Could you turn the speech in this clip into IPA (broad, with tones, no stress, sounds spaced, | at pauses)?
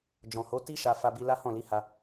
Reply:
d͡ʒ ɔ̃˨ h o˨˦ t i˦ ʃ a˧ f a˧ b i˧ l a˦ h ɔ̃˦˨ l i˨˦ h a˧